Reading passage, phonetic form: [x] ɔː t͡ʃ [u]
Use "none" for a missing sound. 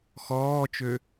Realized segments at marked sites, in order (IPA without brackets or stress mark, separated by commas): x, ø